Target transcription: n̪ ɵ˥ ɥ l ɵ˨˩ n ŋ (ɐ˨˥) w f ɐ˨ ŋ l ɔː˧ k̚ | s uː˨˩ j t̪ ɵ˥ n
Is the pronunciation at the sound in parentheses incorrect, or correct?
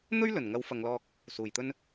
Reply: correct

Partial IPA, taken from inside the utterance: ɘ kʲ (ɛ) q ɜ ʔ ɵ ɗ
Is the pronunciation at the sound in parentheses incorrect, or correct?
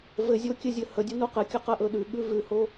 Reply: incorrect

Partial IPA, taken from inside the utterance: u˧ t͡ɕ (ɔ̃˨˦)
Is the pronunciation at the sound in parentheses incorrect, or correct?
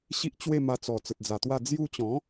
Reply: correct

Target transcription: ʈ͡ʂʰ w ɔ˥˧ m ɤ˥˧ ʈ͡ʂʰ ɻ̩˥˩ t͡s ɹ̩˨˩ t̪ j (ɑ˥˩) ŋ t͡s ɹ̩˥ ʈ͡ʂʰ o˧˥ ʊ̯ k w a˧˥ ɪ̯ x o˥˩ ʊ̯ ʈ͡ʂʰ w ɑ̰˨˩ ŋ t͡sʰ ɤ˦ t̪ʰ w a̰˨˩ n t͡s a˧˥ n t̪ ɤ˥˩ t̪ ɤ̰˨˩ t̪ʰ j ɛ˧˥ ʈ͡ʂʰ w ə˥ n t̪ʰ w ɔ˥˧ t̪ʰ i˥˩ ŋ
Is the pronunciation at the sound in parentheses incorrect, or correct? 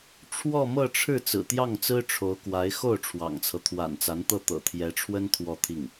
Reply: correct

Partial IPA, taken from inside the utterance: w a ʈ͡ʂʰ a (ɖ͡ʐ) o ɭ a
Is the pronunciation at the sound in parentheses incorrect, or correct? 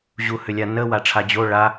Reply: incorrect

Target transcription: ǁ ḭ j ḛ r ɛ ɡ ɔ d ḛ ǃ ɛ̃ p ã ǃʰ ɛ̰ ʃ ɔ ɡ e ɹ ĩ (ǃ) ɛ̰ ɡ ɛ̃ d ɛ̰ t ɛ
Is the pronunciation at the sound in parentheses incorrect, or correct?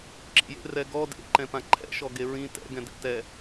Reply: incorrect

